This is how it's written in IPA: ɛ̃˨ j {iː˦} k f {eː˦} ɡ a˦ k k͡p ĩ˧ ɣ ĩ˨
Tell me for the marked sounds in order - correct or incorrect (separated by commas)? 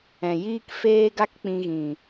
correct, correct